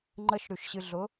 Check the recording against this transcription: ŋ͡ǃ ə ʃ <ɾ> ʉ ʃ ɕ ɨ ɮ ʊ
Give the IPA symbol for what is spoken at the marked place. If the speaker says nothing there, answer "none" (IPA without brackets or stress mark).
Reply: ɾ